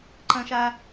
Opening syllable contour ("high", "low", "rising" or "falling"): high